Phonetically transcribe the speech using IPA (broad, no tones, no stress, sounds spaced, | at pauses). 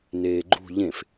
n eː ɡ͡ǃ ṳ ʎ ẽ f